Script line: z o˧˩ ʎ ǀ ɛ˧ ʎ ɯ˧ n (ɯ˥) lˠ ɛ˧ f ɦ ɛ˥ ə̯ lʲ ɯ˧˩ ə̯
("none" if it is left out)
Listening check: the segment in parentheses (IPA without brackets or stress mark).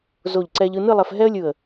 ɯ˥˧